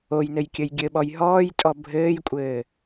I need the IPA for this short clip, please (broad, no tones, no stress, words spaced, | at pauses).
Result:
ojnɘjkʲɘj ɡʲɘɓɔj ɦɔːjtʼɔ bʱɘːjkʷʼɘː